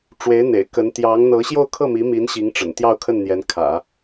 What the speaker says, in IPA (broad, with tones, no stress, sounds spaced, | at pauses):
ʈ͡ʂ w e˧˥ ɪ̯ n̪ ḛ˨˩ ɪ̯ k ə˧˥ n t̪ j ɑ˧˥ ŋ n̪ ɤ˧˥ ɕ j o˥˧ ʊ̯ kʰ ɤ˥˩ m i˧˥ m i˧˥ n ɕ i˧˥ ŋ ʈ͡ʂ ə̰˨˩ n t̪ j ɑ˥˧ ʊ̯ kʰ ə˥˩ n n̪ j ɛ˧˥ n kʰ ä̰˨˩˦